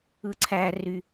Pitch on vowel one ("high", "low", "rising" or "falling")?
high